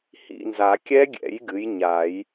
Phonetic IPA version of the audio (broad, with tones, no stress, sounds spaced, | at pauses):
h ḭ˦˨ n z a˨˩˦ kʲ ɛ˦˥ ɡʲ ɛ̰˨˩˦ j ɡ ɨ˩˥ j ɲ a˨˩˦ j